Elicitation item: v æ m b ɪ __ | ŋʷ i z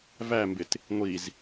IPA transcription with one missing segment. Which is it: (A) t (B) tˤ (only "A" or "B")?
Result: A